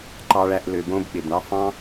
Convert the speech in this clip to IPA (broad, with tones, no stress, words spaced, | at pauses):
ǃɑ˦ɭæ˦ʔlø˧bõ˦b ɓe˨bɳɑ˦ fɑ̃˦